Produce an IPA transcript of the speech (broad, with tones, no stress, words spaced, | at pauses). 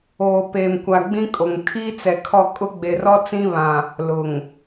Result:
oː˨peː˨mkʷa˨ ɡ͡bĩ˦kʼo˨ŋ tʰiː˦t͡sɛ˨kʰɔ˦˨ kʼʊ˦ɡ͡be˨rɔ˦ t͡sĩ˦βã˨ | lʊ˨ŋ